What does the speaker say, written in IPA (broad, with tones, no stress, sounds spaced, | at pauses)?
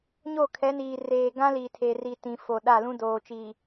ɲ o˦˨ kʰ ɛ˨˦ n iː˨ r eː˨ ɡ ã˦ l i˨ tʰ e˨ r i˨ t ĩ˨ f o˨ ɗ a˦˨ l ũ˦ d oː˨ t͡ʃ iː˨